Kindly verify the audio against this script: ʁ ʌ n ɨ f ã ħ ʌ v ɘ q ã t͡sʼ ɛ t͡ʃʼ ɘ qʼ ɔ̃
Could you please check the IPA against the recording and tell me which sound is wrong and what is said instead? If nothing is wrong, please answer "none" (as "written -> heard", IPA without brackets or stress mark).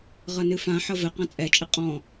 none